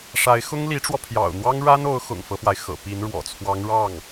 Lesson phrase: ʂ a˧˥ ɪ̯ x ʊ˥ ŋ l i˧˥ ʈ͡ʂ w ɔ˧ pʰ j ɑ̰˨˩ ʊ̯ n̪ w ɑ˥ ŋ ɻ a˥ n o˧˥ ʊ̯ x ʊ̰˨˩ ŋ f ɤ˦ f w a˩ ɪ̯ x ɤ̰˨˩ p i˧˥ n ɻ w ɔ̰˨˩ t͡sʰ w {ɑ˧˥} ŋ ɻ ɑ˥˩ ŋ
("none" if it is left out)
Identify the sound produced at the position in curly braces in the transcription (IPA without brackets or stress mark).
ɑ˧˥